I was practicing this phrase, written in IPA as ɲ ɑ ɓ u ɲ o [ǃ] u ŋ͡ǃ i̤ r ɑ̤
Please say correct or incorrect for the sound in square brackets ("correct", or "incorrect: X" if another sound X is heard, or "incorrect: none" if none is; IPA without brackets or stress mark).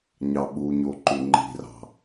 correct